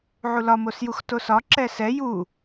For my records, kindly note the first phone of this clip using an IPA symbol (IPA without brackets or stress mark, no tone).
ʕ